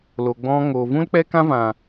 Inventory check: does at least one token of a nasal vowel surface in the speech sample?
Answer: yes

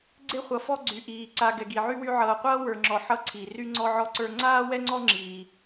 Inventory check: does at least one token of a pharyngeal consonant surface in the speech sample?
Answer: yes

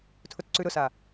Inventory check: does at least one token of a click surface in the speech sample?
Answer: yes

